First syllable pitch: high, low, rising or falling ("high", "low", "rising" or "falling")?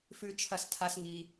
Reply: low